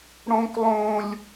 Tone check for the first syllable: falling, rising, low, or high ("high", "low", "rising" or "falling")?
high